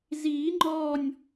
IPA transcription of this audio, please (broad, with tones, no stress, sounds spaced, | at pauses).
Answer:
z iː˨˩˦ ŋ͡ǃ ɔː˧˩ nʲ